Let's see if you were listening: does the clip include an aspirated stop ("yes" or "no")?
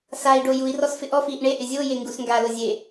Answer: no